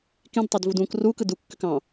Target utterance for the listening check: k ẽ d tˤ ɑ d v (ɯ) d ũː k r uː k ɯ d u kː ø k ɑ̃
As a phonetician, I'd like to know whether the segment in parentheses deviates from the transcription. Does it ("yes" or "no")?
yes